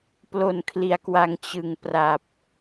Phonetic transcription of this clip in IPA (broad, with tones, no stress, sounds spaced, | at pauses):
p l o˨˩ n kʰ l i˩˦ a̯ k w a˨˩ ŋ t͡ɕ ɯ˨˩ ŋ p r a˨˩ p̚